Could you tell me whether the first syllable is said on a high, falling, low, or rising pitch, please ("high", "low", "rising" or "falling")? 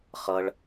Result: high